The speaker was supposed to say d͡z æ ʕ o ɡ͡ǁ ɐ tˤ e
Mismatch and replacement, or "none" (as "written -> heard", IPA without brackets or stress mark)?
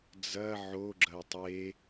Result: æ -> ɐ